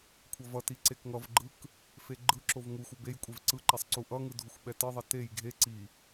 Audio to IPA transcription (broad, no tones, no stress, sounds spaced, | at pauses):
kʷʰ ʌ v ʌ t i ǀ e k ŋ ʌ v ɡ͡ǃ ɯ k | f e ɡ͡ǃ ɯ ǁ o v ŋ u xʷ ʌ b e j kʷʼ e v ǀ ɯ ǃ ɛ sˤ ǀ u ʔ ʌ ŋ ɯ dʱ u xʷ ɓ ɛ t ɯ ðˤ ʌ t e j ɡʱ e ǀ i